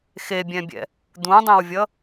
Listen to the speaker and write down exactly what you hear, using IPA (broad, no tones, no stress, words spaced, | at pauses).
xebʲɛ̃bʲɛ̰ | d̪ũdˤẽwvʲʌ